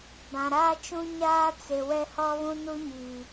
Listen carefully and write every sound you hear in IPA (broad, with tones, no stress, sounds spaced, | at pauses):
b ã˨ ɾ aː˦ t͡ʃ ũ˦ ɲ aː˦ t͡s e˨ w ɛ˦ h ɔ˦ β ũ˦ n u˦ ɲ iː˨